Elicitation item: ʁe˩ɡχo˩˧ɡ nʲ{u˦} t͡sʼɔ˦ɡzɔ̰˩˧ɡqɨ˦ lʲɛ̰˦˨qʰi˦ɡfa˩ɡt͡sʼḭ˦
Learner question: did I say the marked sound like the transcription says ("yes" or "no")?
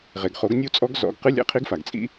yes